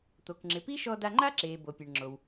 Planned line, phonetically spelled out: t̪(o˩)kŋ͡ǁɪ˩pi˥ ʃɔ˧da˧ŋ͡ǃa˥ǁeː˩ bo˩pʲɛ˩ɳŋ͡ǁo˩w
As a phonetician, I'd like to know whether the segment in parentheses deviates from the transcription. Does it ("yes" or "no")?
no